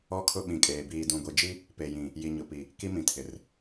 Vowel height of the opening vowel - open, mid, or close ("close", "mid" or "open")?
mid